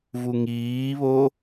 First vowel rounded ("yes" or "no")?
yes